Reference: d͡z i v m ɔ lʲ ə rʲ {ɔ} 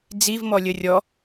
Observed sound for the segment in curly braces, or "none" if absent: ɔ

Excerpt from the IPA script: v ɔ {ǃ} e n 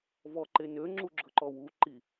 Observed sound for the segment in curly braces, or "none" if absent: ǃ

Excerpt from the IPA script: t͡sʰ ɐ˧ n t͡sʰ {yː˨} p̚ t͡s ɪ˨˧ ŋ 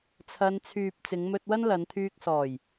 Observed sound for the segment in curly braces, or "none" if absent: yː˨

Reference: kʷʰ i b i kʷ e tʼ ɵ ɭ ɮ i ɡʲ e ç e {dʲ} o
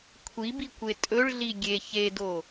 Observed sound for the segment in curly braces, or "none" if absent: d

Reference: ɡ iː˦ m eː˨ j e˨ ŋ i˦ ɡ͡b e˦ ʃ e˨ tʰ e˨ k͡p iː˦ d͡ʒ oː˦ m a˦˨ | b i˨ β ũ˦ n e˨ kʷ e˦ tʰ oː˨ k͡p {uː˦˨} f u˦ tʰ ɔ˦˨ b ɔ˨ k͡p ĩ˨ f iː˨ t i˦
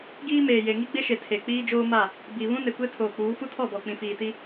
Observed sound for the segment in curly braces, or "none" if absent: uː˨˦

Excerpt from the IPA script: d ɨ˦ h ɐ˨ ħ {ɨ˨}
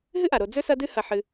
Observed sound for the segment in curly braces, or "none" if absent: ɨ˨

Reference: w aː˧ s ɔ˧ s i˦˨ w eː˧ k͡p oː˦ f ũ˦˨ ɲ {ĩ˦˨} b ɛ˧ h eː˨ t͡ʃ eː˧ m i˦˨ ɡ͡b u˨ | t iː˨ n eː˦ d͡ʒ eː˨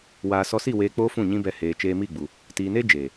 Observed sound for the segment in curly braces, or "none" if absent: ĩ˦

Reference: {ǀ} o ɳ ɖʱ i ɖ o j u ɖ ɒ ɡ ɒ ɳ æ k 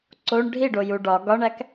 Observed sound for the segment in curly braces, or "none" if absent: ǀ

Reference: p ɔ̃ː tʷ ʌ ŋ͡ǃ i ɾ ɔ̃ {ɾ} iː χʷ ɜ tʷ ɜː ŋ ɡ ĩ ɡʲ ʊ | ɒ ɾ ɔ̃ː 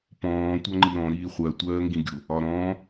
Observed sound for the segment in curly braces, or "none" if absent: ɾ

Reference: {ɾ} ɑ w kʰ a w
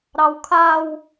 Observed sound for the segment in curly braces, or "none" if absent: ɾ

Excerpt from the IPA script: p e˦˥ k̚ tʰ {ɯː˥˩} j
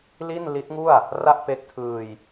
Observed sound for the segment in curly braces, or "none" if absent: ɯː˧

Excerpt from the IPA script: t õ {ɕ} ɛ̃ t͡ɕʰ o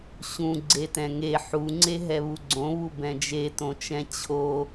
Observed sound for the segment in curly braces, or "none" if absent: t͡ʃ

